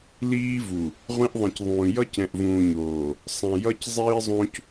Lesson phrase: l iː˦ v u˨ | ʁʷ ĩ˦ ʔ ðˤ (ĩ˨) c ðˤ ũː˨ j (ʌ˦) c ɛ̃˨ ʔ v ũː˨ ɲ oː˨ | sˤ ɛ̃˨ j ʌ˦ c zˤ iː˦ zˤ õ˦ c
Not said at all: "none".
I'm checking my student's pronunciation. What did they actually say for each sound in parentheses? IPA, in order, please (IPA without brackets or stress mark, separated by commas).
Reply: ĩ˨, ʌ˦